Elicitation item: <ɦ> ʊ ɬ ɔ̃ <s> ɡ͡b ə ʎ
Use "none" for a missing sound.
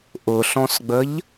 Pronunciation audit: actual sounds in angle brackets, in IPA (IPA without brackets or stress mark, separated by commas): ʔ, s